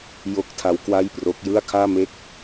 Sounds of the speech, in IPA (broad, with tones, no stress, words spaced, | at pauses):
jo˥˩k̚tʰa˦˥w kwa˥˩jpro˦˥k̚ jɯ˥˩a̯kʰaː˥˩me˥˩k̚